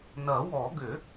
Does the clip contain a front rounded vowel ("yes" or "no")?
yes